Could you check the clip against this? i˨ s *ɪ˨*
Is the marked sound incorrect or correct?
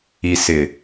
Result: correct